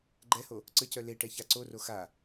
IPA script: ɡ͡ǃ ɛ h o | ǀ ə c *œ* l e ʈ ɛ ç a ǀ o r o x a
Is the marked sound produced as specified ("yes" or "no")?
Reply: yes